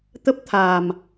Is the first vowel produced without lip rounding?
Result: yes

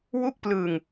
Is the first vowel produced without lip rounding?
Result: no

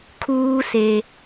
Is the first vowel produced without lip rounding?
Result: no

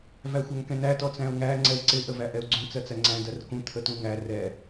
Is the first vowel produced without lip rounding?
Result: yes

